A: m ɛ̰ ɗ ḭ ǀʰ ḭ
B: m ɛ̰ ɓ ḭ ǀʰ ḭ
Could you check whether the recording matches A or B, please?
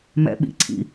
B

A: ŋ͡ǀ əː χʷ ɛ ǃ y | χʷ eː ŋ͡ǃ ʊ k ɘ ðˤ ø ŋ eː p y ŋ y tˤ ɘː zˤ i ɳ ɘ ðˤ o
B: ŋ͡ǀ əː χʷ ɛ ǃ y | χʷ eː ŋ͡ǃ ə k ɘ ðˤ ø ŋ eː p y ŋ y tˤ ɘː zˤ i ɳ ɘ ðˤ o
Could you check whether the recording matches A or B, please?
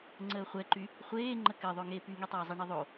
B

